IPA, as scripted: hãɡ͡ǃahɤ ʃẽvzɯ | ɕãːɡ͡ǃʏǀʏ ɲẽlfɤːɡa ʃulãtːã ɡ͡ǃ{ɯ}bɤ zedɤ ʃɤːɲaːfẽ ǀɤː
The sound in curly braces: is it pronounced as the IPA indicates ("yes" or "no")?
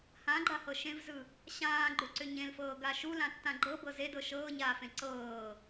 no